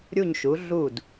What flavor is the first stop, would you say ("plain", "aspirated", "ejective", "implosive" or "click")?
plain